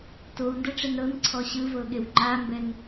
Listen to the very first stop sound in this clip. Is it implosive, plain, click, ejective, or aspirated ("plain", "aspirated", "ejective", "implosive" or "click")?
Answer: plain